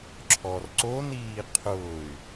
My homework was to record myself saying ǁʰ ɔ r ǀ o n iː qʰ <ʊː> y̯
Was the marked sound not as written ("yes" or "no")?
no